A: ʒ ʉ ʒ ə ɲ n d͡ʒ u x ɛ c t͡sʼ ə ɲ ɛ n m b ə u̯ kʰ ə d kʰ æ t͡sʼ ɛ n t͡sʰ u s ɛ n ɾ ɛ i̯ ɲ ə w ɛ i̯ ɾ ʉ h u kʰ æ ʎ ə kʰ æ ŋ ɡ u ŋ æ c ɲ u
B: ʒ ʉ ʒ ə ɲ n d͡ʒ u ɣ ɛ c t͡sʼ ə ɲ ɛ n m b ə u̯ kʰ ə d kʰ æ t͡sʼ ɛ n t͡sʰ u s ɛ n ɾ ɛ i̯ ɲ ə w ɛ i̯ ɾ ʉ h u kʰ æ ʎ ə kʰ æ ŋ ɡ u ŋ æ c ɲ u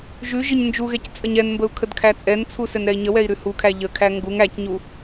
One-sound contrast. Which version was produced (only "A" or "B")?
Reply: B